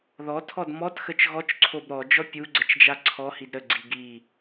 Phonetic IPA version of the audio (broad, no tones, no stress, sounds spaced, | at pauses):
ð ɔ tʰ ɔ d m ɔ t x ə t͡ʃ ɣ ɔ t͡ʃ ǀʰ o b ɾ ɔ d͡ʒ ɔ pʲ u ɡ͡ǀ ə t͡ʃ d͡ʒ a ǀʰ ɔ h i d ɾ ə ɡ͡ǀ i ɡ i